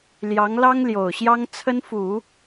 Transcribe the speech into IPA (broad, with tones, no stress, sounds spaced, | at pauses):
l j ɑ˧˥ ŋ l ɑ˥ ŋ l j o˨˩ ʊ̯ ɕ j ɑ˥ ŋ t͡sʰ ə˥ n f u˨˩˦